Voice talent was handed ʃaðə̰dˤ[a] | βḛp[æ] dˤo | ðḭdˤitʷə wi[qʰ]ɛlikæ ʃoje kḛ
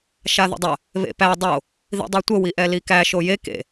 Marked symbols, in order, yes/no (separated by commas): no, yes, no